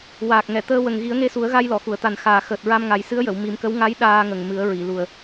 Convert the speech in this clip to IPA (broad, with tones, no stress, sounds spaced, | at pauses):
w aː˨˩ k̚ ŋ ɛ˨˩˨ t̪ əː˧ w ə˨˩ ŋ ɣ i˨˩˦ ə̯ ŋ e˧ s u˨˩˦ ə̯ ɣ a˧ j l ɔ˨˩˨ x u˨˩˨ ə̯ t̪ a˨˩ n x aː˨˩ x əː˨˩ t̚ ɹ a˧ m ŋ a˨˩˦ j s ɨ˧˥ ə̯ j ə˨˩˨ w m i˨˩˦ m k ə˧˥ w ŋ a˧˥ j ɗ aː˧ ŋ ə˨˩ ŋ m ɨ˨˩˦ ə̯ ɹ i˨˩˨ l u˨˩ ə̯